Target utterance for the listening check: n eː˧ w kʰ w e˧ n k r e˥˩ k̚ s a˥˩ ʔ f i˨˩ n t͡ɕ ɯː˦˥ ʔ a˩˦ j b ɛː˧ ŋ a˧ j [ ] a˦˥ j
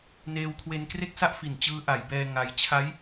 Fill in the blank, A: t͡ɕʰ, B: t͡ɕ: A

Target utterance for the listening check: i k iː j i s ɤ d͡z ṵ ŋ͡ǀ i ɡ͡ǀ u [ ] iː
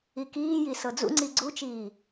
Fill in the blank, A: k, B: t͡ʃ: B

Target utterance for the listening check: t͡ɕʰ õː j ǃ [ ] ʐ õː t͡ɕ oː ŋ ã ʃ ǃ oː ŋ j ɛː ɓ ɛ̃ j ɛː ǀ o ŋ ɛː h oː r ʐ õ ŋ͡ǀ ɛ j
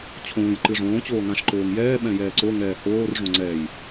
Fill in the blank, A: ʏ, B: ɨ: B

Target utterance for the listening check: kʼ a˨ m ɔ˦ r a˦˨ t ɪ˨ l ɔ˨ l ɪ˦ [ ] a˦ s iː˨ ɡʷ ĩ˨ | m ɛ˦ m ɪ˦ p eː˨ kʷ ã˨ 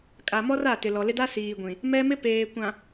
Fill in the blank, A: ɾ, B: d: B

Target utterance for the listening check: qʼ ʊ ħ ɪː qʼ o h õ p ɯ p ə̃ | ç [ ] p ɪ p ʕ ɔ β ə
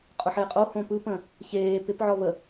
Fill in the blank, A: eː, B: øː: A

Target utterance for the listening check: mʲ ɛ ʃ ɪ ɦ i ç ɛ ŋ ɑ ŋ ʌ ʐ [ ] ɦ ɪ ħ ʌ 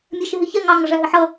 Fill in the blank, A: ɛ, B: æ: B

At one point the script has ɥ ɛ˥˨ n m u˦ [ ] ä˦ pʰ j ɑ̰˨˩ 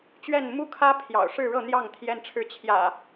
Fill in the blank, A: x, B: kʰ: B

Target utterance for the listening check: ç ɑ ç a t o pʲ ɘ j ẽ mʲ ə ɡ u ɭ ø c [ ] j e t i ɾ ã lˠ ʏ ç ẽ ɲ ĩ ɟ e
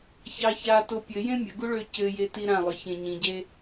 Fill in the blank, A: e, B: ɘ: B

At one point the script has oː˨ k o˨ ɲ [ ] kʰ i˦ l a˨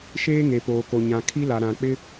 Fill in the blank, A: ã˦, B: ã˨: B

